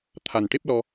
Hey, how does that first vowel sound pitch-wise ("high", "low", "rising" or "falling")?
low